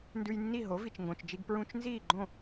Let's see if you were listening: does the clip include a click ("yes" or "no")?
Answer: yes